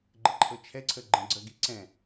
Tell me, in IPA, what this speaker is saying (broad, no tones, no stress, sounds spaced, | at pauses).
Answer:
ɡ͡ǃ ə ǃʰ ɤ t͡ʃʰ ɛ ǀʰ ə ɡ͡ǃ ə̃ ɡ͡ǀ ə ɡ i ǀ ɛ̃